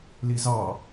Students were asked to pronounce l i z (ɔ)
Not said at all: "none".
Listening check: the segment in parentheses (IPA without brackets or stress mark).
ɑ